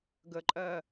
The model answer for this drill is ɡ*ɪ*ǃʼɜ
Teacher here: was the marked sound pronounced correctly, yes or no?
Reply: no